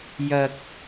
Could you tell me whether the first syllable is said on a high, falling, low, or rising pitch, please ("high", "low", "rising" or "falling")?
high